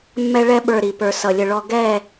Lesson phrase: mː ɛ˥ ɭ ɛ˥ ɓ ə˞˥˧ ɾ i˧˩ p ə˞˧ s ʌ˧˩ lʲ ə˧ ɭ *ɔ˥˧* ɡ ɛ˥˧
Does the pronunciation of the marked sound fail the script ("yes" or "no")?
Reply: no